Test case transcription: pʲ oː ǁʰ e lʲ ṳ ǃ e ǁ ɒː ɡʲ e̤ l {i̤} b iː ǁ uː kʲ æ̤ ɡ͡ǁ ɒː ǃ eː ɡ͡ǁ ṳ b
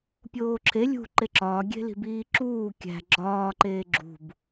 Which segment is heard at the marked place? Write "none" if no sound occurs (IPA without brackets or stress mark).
i̤